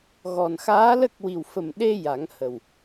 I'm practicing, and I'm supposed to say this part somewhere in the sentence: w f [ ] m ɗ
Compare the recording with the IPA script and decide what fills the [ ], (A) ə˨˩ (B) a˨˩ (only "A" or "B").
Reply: A